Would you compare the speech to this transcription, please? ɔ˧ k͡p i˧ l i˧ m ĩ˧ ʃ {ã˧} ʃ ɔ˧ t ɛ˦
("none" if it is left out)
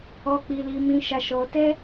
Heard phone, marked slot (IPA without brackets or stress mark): a˧